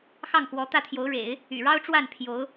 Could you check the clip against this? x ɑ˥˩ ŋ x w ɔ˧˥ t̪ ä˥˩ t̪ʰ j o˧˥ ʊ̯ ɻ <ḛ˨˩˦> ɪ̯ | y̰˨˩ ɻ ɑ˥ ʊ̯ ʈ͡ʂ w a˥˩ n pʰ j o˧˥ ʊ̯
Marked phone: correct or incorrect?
correct